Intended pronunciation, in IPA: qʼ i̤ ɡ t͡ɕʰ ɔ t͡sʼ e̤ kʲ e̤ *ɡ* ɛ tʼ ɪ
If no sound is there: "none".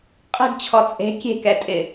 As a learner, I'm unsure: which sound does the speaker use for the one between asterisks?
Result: k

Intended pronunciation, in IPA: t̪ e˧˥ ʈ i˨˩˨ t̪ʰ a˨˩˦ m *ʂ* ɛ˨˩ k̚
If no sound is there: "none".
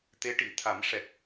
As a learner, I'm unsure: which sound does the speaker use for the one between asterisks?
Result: ʂ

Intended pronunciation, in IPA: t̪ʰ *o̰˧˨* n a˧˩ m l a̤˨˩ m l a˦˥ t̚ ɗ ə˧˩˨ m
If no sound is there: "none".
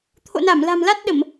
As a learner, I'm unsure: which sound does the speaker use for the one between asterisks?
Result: o̰˧˨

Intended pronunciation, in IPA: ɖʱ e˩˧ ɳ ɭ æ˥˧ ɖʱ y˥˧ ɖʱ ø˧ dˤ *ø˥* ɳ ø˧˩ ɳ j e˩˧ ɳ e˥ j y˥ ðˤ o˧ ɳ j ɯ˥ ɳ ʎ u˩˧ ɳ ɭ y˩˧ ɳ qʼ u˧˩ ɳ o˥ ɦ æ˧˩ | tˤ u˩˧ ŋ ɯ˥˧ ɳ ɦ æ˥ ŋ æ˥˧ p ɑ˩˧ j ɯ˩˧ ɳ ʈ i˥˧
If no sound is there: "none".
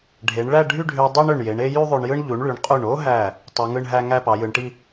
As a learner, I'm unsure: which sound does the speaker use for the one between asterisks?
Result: e˥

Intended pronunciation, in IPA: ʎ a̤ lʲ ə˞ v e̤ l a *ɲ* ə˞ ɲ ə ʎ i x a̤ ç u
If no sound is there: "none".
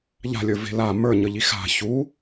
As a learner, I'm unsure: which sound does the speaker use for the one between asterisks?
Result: m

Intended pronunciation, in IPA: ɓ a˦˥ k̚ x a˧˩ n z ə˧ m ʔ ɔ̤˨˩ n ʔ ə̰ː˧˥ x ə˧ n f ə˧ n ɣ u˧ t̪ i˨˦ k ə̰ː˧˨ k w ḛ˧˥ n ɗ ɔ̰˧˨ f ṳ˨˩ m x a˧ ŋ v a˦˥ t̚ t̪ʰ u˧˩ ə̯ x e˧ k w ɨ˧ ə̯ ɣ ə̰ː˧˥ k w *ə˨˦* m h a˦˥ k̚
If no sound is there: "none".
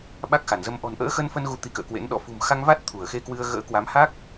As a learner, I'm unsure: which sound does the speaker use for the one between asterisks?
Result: a˨˦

